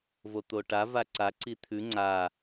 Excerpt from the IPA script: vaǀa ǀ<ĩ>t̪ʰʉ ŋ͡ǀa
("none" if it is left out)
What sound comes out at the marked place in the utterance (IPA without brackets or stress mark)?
i